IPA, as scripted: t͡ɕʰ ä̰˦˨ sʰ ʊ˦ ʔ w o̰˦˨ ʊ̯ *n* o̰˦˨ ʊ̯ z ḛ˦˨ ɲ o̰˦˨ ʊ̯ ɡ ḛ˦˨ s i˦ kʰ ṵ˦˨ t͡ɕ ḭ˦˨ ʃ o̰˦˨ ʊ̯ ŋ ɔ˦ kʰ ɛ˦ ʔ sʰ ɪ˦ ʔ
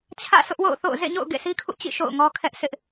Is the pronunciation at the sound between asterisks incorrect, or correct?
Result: incorrect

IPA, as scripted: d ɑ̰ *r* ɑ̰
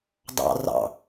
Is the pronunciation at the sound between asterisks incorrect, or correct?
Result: correct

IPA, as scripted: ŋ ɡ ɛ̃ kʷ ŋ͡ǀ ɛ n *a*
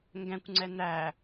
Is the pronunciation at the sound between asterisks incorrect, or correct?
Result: incorrect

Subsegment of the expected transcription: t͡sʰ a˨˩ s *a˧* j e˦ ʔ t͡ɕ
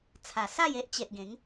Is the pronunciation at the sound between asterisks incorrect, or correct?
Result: incorrect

